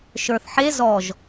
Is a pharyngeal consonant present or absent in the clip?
present